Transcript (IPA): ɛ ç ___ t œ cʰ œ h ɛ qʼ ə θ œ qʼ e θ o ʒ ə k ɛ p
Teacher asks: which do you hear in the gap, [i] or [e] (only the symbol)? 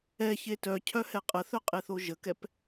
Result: e